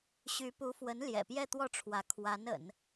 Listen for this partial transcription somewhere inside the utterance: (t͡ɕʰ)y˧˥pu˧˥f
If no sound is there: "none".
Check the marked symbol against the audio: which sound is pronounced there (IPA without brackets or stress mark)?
ɕ